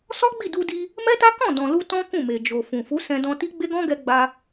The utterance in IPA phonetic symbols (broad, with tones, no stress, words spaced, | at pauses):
sɔ˦ɡ͡bi˦˨du˧di˧ | mɛ˦ta˦ kɔ̃˦˨dɔ̃˨lu˧ tɔ̃˦kũ˦˨me˨ d͡ʒo˨fũ˨ fu˨˦sɛ̃˧dɔ̃˧ti˦ ɡ͡be˦ɡɔ̃˦ɡɛ˧ ɡ͡ba˧